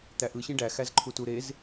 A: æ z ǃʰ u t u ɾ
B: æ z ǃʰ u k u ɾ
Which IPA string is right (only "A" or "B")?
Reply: A